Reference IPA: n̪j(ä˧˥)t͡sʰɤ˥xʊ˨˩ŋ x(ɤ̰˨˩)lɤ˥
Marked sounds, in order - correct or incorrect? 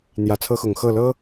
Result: correct, incorrect: ɤ˥˩

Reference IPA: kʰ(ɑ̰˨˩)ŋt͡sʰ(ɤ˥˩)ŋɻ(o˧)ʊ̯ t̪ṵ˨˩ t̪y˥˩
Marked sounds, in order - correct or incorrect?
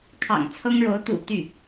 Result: correct, incorrect: ɤ˥, incorrect: o˧˥

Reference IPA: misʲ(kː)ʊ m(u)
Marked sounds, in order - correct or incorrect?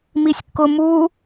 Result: correct, correct

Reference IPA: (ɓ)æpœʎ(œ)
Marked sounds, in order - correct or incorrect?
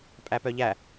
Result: incorrect: pʼ, incorrect: æ

